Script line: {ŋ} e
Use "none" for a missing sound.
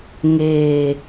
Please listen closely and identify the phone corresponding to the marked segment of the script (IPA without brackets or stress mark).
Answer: ŋ